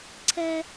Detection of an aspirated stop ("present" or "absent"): present